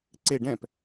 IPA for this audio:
ǀe ɖɛ̃p

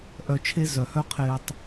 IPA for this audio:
ʔœ˧t͡ʃʰe˦ zœ˨hœ˦qʰɪː˧tˤ

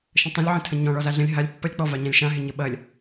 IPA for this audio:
ʃə̃tˤə̃lʲʕə̃ tʰə̃ɲɔ̃ ɭɔzaɮə̃lʲ ɦalʲ pːɐlʲk͡pɔvaɲãlʲ ʃãɦɪ ɲəɓɐlʲ

